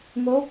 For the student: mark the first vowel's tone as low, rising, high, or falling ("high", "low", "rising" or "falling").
rising